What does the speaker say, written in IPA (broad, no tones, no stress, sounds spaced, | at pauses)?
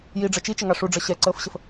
j i ɖ͡ʐ ʌ t͡ʃ i t͡ʃ ə ŋ ɑ ʂ u ɖ͡ʐ ʌ ɕ ɛ ǀ əː f ɕ ə f